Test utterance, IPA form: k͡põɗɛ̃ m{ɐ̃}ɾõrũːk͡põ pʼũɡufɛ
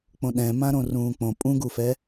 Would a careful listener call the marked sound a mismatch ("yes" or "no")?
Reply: yes